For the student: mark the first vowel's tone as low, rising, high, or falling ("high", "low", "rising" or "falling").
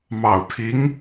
low